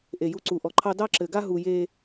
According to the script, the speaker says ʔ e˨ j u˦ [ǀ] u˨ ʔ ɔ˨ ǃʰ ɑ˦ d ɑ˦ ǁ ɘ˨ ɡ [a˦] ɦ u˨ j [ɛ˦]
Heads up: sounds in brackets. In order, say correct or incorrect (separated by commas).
correct, correct, incorrect